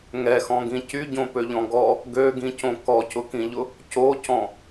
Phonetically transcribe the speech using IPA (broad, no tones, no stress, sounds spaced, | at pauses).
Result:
ŋ ɛ x ɔ̃ ɡ ĩ c y ɟ õ p ø ʎ ɔ̃ ɡ ɔ | ɡ ø ɡ ĩ c õ k ɔ c ʊ k ĩ ʎ ʊ | c o c ɔ̃